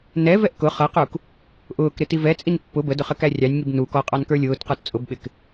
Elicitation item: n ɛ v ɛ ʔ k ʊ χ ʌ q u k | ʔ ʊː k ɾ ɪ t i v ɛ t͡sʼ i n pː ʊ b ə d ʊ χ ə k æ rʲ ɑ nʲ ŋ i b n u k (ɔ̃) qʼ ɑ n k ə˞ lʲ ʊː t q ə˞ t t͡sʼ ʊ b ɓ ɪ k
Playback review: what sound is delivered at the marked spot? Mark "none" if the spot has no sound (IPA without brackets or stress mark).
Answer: ɔ